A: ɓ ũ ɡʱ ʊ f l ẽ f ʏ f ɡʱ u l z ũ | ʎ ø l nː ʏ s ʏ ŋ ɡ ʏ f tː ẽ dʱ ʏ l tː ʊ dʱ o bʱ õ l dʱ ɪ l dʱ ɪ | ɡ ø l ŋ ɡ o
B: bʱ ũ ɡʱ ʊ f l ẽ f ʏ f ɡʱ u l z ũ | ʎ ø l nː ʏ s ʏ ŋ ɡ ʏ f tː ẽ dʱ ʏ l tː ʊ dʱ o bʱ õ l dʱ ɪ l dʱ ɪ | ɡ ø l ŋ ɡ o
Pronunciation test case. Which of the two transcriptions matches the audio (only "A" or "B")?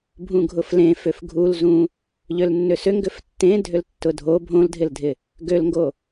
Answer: B